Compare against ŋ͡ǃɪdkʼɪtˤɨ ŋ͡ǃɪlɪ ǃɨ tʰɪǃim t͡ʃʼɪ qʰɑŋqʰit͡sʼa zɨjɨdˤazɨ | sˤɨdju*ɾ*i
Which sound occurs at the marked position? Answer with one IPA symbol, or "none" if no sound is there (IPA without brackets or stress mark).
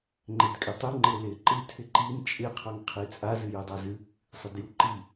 ǃ